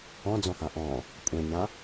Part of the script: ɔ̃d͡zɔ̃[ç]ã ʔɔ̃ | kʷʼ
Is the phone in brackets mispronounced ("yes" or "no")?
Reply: yes